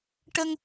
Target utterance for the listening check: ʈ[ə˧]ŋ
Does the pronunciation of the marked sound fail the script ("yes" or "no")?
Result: no